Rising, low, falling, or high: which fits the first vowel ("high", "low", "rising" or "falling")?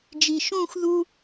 low